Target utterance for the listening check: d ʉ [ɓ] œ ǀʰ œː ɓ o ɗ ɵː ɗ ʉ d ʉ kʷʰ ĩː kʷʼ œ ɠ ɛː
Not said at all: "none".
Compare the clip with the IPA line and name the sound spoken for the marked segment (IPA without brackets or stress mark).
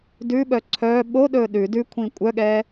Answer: ɓ